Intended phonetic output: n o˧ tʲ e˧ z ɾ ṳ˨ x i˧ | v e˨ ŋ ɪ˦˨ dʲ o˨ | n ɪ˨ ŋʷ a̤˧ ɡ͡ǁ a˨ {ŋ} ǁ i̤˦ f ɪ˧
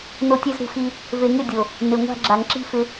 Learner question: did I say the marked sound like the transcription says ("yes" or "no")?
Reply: yes